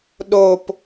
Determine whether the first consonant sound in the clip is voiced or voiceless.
voiced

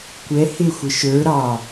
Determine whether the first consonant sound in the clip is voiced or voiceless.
voiceless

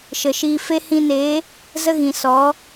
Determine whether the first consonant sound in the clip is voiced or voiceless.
voiceless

